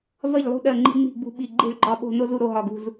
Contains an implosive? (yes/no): yes